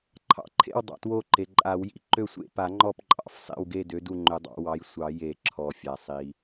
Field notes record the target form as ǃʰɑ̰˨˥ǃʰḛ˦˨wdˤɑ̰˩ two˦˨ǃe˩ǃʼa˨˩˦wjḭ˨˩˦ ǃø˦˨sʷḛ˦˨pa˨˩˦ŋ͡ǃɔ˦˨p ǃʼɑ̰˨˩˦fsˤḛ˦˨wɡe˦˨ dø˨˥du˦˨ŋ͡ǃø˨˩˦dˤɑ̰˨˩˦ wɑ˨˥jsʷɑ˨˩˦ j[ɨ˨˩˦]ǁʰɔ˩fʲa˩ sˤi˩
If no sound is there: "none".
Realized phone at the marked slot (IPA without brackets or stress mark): e˨˩˦